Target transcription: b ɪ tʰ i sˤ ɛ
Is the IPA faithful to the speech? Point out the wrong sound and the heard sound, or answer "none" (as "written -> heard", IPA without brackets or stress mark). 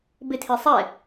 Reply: none